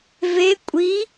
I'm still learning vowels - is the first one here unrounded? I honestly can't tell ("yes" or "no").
yes